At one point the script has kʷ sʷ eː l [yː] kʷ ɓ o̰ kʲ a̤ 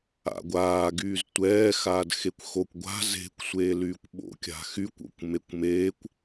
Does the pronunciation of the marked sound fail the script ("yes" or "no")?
no